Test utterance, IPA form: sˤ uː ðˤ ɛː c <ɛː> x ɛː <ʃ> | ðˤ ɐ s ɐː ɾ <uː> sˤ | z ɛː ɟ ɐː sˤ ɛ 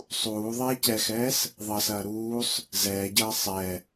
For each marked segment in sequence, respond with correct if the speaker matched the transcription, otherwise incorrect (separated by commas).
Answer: incorrect, incorrect, correct